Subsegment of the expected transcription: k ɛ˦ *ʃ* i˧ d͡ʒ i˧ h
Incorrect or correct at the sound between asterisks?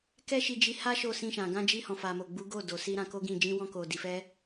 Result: correct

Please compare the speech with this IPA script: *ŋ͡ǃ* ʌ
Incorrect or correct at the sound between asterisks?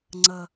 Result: incorrect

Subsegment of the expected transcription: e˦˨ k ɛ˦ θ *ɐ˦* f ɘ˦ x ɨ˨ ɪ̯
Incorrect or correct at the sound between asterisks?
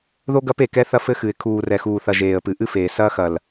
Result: correct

